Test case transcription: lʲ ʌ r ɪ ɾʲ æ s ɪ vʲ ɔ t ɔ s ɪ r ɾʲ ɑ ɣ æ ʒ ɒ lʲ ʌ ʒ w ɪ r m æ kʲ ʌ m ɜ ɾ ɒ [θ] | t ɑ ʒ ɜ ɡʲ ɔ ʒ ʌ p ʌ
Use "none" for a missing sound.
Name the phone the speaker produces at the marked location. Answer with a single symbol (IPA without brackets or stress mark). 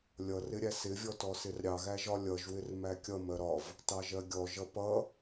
v